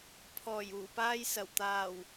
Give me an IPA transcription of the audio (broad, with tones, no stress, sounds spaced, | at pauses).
pʰ ɔː˨˩ j uː˨˩ p aː˧ j s ɐ˨˩ w t̪ aː˨˩ w